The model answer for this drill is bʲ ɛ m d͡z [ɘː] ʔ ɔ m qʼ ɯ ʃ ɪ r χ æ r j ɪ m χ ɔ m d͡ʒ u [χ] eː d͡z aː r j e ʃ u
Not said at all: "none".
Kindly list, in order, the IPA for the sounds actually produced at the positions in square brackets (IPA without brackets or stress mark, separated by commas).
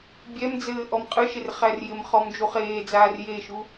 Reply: ɘː, χ